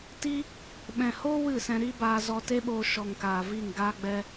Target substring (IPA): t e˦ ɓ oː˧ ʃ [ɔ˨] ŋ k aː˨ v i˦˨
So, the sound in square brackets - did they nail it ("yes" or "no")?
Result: yes